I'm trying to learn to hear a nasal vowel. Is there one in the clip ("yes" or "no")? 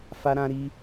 yes